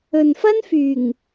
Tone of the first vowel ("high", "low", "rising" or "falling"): low